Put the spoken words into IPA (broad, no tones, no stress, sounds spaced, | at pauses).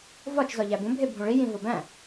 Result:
v ɒ t͡ʃ z ɒ ʎ æ b ũ bʱ e bʱ ũ ɭ i j ĩ v ɒ b æ̃